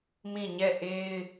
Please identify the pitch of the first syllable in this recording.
falling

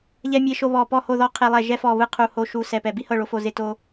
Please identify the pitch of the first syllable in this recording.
high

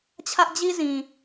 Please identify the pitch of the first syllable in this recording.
high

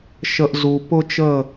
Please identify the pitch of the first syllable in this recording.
low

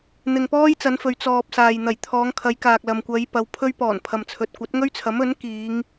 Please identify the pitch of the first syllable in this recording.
low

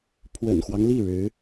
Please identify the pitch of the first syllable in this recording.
low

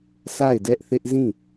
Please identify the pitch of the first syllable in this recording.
falling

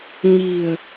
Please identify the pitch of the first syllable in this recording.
low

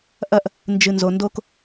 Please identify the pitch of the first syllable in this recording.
high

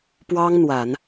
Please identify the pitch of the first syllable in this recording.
high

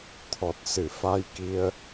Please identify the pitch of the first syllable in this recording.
low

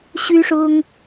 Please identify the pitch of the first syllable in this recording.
high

